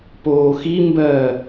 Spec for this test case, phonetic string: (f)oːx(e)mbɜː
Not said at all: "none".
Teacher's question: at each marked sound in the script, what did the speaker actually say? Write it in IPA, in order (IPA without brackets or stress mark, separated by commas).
p, i